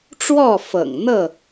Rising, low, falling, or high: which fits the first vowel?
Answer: falling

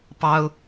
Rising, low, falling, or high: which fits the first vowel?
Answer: high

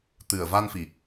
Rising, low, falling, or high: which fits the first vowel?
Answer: low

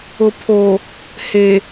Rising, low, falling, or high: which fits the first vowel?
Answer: low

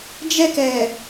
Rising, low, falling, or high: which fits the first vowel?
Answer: high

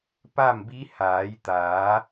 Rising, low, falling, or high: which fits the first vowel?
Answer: falling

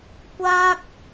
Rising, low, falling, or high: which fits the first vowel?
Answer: high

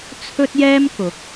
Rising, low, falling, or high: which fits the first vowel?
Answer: high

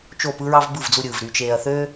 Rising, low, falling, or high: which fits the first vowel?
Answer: falling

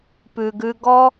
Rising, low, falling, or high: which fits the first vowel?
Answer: low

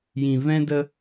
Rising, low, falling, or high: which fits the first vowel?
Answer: low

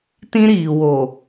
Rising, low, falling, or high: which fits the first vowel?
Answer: high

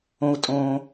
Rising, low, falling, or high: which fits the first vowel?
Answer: low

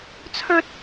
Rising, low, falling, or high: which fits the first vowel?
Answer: high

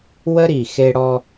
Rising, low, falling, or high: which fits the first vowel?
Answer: high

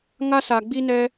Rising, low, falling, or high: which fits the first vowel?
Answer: high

